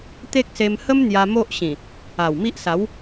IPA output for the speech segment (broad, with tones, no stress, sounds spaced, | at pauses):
t̪ e˦ k̚ s e˧ m h ə˦ m n̪ j a˧ m o˦ ʔ ɕ ĩ˨˩ | a˨˩ w m i˦ ʔ s a˨˦ w